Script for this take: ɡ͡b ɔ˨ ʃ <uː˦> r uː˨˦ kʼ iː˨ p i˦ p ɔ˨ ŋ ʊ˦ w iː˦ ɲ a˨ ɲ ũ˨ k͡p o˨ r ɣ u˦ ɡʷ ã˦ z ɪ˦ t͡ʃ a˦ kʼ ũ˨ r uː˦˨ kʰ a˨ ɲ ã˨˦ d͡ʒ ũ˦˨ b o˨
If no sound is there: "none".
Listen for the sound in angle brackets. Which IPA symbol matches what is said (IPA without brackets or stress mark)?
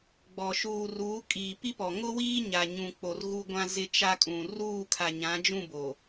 uː˨